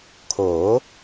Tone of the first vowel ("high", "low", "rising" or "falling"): rising